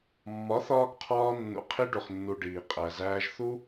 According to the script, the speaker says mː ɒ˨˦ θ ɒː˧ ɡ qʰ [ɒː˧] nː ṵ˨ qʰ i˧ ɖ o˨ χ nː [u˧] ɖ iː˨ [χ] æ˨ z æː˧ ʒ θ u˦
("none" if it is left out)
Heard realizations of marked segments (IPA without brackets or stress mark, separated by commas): ɒː˧, u˨, qʼ